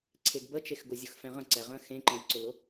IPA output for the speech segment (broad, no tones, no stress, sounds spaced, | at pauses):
ǀʰ e ɡ b ə t͡ʃ e x ɡ ʊ zʲ ʊ x f ɛ̃ ʁ ə̃ ǀ ɛ ʁ ə̃ x ẽ ǃ ɛ̃ j ǀ ʊ l ʊ